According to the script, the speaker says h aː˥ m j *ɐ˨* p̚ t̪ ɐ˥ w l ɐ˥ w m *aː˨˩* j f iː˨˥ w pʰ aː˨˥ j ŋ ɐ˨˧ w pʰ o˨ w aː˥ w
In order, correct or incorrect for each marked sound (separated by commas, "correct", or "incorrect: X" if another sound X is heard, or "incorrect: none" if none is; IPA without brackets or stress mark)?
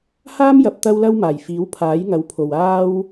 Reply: correct, correct